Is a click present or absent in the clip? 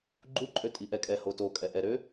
present